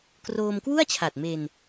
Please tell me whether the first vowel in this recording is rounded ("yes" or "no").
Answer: yes